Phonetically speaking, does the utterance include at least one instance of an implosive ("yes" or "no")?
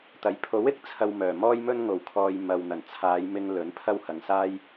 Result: no